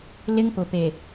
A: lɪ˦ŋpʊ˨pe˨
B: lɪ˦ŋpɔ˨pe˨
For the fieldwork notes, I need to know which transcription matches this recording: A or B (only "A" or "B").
A